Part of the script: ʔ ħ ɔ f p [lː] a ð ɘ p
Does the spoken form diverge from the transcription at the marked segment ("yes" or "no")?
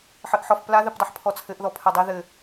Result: yes